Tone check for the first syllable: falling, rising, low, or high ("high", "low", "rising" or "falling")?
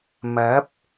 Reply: rising